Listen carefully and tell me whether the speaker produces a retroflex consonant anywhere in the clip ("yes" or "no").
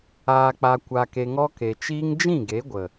no